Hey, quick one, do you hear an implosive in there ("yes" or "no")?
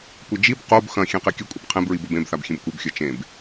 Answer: no